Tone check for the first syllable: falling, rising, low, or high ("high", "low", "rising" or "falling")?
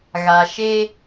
low